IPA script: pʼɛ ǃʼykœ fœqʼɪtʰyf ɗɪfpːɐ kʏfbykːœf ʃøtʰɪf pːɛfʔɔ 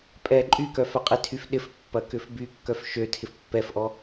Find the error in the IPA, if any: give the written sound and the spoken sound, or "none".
none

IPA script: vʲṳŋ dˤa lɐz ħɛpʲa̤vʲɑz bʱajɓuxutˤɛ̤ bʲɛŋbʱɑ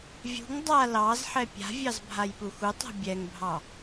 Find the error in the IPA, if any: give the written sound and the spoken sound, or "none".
ɐ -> ɑ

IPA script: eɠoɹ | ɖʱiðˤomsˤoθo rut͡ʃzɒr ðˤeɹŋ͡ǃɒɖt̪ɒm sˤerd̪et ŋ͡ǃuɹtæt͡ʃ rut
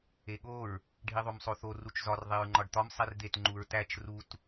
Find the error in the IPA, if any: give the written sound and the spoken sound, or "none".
none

